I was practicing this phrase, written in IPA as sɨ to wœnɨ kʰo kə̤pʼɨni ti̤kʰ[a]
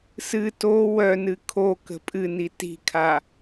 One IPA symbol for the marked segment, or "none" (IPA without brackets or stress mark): a